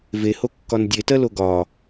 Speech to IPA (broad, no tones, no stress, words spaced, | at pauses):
veho kːɒndʲetɜ loɡɒ